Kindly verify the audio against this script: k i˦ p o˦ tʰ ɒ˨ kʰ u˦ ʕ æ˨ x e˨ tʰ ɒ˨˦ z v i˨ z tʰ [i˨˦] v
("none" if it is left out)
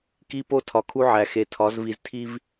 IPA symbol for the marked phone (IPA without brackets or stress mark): i˦